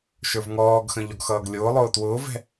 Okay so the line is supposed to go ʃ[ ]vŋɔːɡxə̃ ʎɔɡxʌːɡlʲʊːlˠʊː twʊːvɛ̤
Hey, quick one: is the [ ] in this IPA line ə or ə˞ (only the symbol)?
ə˞